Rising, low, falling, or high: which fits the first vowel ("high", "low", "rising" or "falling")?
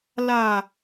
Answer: low